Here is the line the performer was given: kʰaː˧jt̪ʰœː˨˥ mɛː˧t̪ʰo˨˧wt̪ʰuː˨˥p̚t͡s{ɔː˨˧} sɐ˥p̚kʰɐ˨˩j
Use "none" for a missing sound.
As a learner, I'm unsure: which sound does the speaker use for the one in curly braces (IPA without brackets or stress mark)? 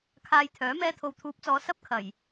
ɔː˨˧